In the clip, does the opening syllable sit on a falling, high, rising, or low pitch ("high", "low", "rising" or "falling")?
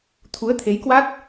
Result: rising